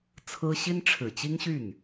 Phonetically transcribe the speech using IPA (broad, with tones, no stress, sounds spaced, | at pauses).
t͡sʰ ɹ̩˥ ɕ i˥ n ʈ͡ʂʰ ɻ̩˨˩ t͡ɕ i˥ ŋ ɕ y˥˩ n